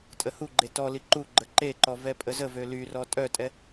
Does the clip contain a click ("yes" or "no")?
yes